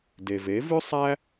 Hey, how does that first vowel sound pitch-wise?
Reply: low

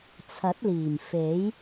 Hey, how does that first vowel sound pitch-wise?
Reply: rising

